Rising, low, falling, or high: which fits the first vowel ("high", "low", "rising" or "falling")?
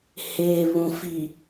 low